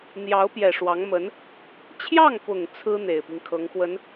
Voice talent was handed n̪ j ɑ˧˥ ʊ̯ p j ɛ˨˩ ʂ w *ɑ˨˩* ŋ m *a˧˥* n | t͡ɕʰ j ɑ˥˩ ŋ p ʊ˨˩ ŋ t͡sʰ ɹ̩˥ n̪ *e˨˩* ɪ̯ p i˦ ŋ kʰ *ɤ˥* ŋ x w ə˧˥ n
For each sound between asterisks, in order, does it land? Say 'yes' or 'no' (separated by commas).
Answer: no, no, yes, no